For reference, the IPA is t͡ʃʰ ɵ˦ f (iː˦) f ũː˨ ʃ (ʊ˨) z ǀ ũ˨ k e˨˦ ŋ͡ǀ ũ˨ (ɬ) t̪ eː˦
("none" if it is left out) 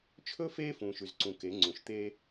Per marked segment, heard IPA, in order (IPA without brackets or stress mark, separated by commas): eː˦, ʉ˨, ʃ